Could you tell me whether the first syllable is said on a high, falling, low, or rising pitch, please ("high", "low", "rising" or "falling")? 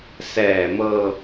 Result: low